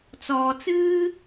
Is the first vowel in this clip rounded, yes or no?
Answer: yes